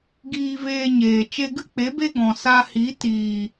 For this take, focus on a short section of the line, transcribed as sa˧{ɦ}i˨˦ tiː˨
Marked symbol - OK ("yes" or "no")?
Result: no